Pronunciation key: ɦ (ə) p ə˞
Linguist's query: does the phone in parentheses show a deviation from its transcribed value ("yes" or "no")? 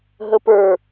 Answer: no